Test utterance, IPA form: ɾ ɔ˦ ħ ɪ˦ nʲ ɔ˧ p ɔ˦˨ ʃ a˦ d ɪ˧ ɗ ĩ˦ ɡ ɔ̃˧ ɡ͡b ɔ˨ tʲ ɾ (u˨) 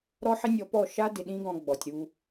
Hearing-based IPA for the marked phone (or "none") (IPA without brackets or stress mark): u˧